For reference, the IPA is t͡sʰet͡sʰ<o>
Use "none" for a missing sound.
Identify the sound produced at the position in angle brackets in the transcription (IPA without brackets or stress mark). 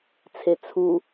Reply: u